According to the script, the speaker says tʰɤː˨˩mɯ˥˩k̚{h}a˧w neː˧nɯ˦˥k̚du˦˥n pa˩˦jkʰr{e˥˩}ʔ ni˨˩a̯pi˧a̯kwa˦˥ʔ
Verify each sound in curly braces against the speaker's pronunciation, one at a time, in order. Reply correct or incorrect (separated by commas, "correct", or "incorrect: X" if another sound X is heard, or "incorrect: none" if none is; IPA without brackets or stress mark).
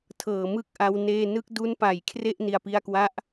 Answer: incorrect: ʔ, correct